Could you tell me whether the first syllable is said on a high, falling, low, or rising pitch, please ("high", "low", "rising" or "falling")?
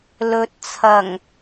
rising